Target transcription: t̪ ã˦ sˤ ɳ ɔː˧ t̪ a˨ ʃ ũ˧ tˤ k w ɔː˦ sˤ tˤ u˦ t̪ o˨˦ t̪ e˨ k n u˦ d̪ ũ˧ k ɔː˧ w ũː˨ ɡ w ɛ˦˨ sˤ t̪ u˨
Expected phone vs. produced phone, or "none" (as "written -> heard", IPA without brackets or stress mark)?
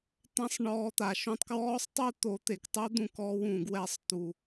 n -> tˤ